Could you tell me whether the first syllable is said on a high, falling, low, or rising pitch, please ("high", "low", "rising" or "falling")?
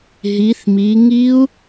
rising